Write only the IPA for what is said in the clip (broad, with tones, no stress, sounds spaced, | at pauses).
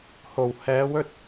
h o˨˩ w h ɛː˨˧ w ɵ˥ t̚